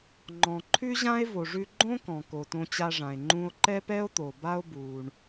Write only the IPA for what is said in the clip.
ŋ͡ǃɔ̃˩ǃʰʉ˥ʑã˥e̯ vo˩ʐʉ˧ ɡ͡ǃõ˥ kɔ̃˩ ko˩tõ˧t͡ɕa˧ʐã˩e̯ ŋ͡ǃũ˧o̯ǃɛ˥pɛ˥o̯t̪o˩ ba˥o̯ buː˩ɳ

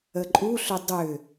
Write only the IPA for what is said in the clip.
əǃʼuɬʏ dˤʏ

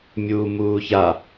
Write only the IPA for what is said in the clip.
mʲuːmuːça

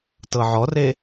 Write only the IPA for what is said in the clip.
tɤʕɔre

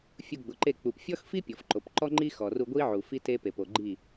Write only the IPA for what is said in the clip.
fʲu˧ɡ͡bʊ˨ǃe˦˨ k͡pu˨pfʲɔ˦xfi˦ pʲɔ˨fǃo˨p ǃɔ˦ŋ͡ǃi˦xɔ˨ru˧ ɡʷi˦ʕu˨ fi˦te˦ pe˨po˨ ɡ͡ǃi˦˨

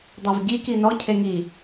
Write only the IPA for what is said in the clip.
dˤavɟi kinɔ cʰeŋi

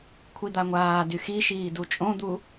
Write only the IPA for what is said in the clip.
kʷʰid̪aŋʷaːdy xiʃiː dut͡ʃʼõd̪u

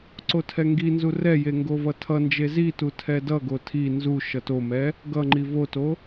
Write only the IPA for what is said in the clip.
ǀotʰɛŋɡinzu rɛje ŋɡovʌtʰʌnd͡ʒe zitu tʰɛdʌɡo tʰi nzu ʃʌtomɛ | ɡʌŋ͡ǃi voto

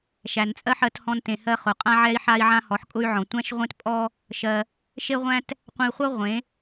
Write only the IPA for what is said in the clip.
ʃæ˨nt͡sʼɜ˦ħɜ˧thɔ̃˧n tẽ˨hɜ˧ χʊ˨qʼã˦ ʕɛ˦i̯ħa˦i̯ʕã˦ hɔ˨˦ħkʼʊ˦y̯ʕɔ̃˨ tʷæ̃˦ʃʁʷẽ˦tpʼɔ˦ | ʃɜ˧ | ʃe˦ʁʷæ̃˦t | qʷẽ˧i̯χʷɜ˦ ʁʷẽ˨˦

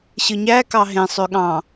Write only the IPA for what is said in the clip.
ɕɯɲækɑ ɦẽ sˤøɠɑ̃

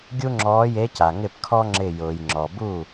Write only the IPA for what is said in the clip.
ɡʲu˥ŋ͡ǁɔː˧˥je˧˥ca˩ ŋɪ˥˩pkʰɔ˥ŋ͡ǁɪ˧˩ jʊː˩jŋ͡ǁɔ˩ bu˥˩

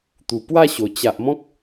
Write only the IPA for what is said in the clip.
t̪u˨˩pwa˥˧ɕo˨˩ t͡ɕa˨ʔ mɔ̃˦k̚

